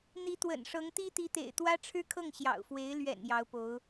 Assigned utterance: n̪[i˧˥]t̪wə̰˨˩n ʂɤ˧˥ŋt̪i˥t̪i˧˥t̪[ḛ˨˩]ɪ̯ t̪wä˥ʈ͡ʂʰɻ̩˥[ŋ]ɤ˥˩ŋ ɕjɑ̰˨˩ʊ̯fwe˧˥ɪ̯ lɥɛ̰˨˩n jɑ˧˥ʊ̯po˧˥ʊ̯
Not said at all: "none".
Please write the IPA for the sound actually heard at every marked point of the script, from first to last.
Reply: i˧˥, ḛ˨˩, kʰ

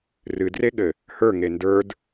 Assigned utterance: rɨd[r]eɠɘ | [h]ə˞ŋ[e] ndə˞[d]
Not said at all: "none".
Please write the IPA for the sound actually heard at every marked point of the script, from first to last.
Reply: r, h, e, d

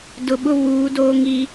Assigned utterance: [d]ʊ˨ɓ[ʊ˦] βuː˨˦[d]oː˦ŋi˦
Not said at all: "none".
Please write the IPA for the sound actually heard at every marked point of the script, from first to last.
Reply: d, ʊ˦, d

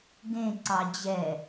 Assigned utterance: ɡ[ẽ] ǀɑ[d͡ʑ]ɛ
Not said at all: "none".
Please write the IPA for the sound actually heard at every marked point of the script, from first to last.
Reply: ẽ, d͡ʑ

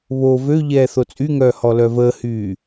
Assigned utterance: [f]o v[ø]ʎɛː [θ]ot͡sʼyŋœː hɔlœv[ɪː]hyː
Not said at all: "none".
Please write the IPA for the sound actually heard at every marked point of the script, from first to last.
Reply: β, ø, θ, əː

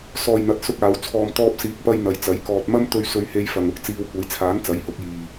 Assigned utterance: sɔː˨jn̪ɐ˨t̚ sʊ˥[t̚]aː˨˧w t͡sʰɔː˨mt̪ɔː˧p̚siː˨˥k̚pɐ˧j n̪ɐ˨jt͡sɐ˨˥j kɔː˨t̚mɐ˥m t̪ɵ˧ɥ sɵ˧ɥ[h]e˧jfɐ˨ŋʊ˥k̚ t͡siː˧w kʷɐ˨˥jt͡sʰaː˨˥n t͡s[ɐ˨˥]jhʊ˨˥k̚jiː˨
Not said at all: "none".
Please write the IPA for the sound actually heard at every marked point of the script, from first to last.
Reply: k̚, h, ɐ˨˥

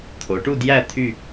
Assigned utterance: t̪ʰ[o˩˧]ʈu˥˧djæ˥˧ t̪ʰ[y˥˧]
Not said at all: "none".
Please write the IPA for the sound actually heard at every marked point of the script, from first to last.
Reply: o˩˧, y˥˧

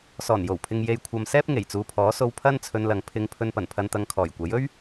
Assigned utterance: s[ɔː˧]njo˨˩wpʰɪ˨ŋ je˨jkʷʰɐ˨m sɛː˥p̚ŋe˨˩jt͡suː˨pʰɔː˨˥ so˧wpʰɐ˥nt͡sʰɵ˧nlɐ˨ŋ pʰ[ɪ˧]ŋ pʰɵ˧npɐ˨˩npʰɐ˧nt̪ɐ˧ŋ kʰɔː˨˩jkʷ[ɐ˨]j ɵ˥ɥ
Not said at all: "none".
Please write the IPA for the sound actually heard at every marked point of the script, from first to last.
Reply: ɔː˨˩, ɪ˧, ɐ˨˥

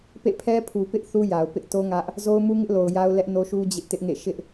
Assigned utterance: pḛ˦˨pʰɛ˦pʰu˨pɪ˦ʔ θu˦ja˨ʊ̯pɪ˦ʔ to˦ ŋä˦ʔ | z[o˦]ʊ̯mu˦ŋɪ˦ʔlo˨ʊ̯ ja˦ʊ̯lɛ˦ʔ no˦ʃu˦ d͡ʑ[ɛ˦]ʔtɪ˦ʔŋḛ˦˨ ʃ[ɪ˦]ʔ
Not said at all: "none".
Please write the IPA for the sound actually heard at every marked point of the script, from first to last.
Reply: o˦, ɪ˦, ɪ˦

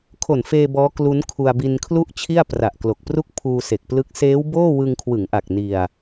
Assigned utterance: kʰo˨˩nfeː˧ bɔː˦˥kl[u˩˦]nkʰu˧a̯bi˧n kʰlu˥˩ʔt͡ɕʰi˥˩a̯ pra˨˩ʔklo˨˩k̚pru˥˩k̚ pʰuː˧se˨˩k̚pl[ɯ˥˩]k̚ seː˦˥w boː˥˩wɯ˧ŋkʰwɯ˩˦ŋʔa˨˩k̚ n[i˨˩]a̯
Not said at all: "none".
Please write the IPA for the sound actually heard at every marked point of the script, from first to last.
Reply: u˦˥, ɯ˦˥, i˧

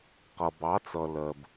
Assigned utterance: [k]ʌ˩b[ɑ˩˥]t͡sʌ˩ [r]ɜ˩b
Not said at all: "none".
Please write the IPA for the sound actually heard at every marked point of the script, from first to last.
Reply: q, ɑ˩˥, l

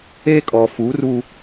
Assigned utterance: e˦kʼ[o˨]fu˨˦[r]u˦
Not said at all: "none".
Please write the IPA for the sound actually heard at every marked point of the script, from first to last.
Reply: ɔ˨, r

